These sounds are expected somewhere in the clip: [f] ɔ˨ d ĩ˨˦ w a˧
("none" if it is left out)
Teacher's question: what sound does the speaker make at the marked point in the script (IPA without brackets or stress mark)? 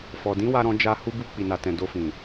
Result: f